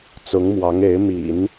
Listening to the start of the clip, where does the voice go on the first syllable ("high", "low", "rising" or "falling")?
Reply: rising